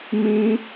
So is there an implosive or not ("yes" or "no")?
no